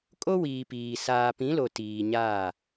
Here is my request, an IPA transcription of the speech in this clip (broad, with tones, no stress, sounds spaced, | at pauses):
kʼ o˦ w iː˨ p iː˨ s aː˨ p ĩ˨˦ l o˨ t iː˨ ɲ aː˦˨